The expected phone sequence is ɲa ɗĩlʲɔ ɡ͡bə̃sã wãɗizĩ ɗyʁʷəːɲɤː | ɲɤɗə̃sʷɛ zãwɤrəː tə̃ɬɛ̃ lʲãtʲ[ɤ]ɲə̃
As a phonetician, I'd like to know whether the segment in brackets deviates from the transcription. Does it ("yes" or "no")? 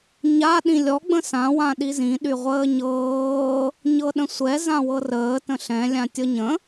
no